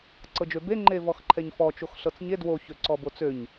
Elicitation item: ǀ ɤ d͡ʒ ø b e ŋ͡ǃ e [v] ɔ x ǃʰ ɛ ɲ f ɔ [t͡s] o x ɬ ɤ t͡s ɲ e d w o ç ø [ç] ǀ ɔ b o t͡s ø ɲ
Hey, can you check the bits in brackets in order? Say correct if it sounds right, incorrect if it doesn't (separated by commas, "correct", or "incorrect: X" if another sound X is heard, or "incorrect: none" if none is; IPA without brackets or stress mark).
correct, incorrect: t͡ʃ, incorrect: none